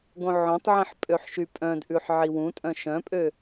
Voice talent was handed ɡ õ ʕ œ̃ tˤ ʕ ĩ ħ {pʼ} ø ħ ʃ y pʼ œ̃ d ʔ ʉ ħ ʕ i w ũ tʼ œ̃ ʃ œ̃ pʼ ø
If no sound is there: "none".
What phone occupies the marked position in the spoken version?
pʼ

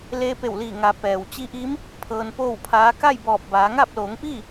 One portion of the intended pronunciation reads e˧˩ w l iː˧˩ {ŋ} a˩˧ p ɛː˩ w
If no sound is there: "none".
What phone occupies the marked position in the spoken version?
ŋ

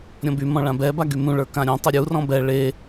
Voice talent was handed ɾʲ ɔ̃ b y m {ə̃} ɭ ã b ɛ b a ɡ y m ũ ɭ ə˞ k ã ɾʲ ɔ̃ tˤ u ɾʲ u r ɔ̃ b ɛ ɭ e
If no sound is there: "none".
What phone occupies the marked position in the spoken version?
ɔ̃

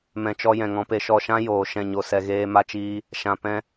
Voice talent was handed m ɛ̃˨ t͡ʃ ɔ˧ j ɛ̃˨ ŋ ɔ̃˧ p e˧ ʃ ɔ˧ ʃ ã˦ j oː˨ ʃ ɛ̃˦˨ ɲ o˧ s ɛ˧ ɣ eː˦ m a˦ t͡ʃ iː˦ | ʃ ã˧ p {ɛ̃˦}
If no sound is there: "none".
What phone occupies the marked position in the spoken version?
ɛ̃˦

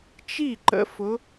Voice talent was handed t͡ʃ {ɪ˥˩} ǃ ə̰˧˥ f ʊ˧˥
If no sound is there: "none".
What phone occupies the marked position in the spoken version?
i˥˩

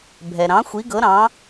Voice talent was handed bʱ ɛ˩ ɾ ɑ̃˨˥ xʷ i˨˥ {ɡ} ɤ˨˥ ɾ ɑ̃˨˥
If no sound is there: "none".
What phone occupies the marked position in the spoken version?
ɡ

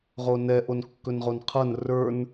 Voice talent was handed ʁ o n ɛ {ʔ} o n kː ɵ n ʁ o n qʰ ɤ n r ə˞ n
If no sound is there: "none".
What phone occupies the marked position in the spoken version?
ʔ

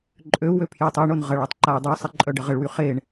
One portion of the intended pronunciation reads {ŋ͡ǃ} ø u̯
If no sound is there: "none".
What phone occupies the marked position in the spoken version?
ǃʼ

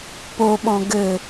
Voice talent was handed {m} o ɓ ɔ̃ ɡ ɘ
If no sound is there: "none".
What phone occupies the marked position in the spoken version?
p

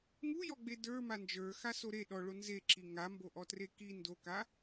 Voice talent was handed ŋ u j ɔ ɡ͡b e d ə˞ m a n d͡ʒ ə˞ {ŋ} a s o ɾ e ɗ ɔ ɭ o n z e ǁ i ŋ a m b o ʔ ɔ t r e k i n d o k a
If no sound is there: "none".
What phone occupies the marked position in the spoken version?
x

